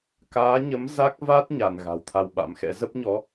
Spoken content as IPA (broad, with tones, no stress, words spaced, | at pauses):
kaː˨˦ɲə˨˦m za˦˥k̚va˦˥t̚ ɲa˧˩n ɣa̤˨˩wt̪ʰa˧wɓa̰˧˥m xɛ̰˧˥ zə˦˥p̚ɲɔ˨˦